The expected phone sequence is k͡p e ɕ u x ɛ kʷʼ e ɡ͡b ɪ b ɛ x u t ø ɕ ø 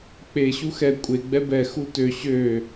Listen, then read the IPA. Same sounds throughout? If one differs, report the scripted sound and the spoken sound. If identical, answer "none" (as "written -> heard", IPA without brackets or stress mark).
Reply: ɪ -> ɛ